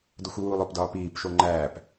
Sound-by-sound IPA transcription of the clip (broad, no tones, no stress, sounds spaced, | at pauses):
d o xʷ w uː lˠ o p d ɒː p iː p ʃ o ŋ͡ǃ æː p